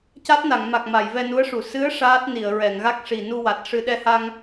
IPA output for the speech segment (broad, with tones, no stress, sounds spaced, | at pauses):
c a˦˥ t̚ n a˨˩˨ ŋ m a˨˩ k̚ m a˨˩˨ j v ɛ˧ n u˧˥ ə̯ ʂ u˨˩˨ s ɨ˧˥ ə̯ ʂ aː˦˥ t̚ n i˨˩˨ ə̯ ɹ ɛ˨˩˨ ŋ ɣ a˦˥ k̚ ʂ i˨˩ n u˧ w a˨˩ t̚ ʂ ɨ˧ ɗ ɛ˧ h a˧ ŋ